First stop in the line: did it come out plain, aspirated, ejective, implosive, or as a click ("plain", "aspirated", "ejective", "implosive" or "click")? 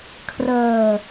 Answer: aspirated